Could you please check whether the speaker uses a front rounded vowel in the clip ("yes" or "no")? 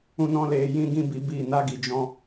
no